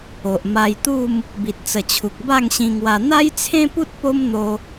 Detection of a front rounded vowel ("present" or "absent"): absent